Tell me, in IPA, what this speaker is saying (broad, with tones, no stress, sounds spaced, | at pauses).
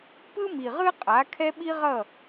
p ɯ˦ m i˨ ʁ ɯ˦ qʼ a˨˦ kʰ ɛ˦ ɓ i˦ ʁ ʌ˦˨